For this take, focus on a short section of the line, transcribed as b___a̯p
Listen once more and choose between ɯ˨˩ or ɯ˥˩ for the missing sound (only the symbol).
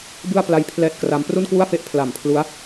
ɯ˥˩